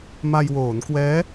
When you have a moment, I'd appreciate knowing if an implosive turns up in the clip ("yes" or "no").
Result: no